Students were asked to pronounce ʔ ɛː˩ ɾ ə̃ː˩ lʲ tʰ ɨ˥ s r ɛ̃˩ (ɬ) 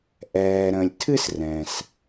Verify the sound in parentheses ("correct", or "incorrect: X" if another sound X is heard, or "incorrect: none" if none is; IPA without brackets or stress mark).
incorrect: s